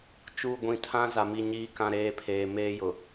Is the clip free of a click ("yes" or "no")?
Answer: yes